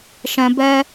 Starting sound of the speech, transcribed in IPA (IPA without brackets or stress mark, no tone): ʃ